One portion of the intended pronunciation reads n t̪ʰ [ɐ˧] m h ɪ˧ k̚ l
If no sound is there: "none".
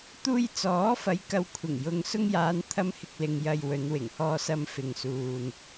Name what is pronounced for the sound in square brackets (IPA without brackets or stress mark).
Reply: ɐ˧